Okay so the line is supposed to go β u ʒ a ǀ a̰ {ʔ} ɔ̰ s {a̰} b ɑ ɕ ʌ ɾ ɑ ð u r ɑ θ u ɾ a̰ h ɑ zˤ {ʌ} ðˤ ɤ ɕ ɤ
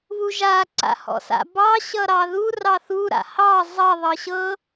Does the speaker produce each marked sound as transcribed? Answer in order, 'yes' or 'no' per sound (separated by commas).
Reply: no, yes, yes